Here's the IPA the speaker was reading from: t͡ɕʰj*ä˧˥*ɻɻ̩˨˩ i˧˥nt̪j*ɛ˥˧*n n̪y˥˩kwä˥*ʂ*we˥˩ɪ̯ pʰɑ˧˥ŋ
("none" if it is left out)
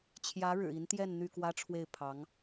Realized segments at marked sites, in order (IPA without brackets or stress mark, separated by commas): ä˧˥, ɛ˥˧, ʈ͡ʂʰ